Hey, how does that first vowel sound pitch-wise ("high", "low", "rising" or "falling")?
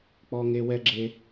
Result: high